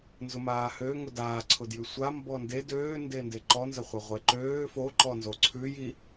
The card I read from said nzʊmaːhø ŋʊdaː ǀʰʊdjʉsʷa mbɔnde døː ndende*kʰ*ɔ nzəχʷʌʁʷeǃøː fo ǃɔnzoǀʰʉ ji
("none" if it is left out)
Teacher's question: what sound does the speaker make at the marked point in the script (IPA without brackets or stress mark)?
ǃ